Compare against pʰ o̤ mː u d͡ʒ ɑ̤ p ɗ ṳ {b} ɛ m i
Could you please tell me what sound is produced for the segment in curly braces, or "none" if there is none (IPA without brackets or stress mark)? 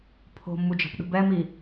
b